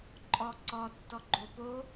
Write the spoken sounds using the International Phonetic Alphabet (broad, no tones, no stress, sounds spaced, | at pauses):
ǃʼ ɔ ǀ ɔ tː ɔ ɡ͡ǃ o p o